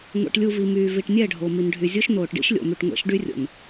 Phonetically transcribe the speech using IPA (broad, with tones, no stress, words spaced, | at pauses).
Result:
ŋʷḛ˨ʈlʲu˨ vi˨myː˨vi˨ʈnʲɛ˦˨ ɖʱo˨mi˨nɖʱy˨zʲo˦ʃ noː˨ʈɖḭ˦ʃ lʲo̰˨my˨ʈŋʷɛ̰˨˦ʃ ɖy˦rʲo̰˨n